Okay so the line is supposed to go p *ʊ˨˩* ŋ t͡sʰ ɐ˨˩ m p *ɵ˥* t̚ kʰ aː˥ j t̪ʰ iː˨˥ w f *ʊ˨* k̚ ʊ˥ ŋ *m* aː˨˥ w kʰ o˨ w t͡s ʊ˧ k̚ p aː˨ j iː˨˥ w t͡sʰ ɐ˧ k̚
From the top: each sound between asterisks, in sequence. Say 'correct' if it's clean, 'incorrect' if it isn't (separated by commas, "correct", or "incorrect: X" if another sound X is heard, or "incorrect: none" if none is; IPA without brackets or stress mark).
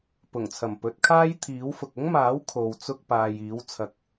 correct, incorrect: ɵ˨˥, correct, correct